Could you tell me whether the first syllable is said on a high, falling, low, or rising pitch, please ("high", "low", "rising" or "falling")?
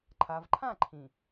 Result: low